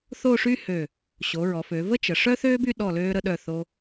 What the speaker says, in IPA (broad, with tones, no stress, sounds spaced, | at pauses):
θ o˥˧ ʂ y˥ h ø˧˩ | ɕ o˩˧ ɹ ɔ˩˧ f ø˩˧ v ə˥ t͡ʃ ə˩˧ ʂ œ˥ θ øː˥ b y˥˧ ɗ ɔ˧˩ l øː˧ ɾ ə˧ ɗ œ˧˩ θ o˧